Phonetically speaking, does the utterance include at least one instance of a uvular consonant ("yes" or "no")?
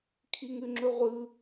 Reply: yes